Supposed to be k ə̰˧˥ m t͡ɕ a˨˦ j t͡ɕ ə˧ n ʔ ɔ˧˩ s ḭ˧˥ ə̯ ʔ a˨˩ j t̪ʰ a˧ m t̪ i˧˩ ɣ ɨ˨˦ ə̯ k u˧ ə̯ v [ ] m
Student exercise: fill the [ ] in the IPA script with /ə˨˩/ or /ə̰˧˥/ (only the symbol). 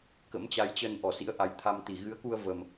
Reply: ə˨˩